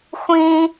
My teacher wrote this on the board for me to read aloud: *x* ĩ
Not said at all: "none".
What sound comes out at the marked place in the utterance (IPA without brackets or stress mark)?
xʷ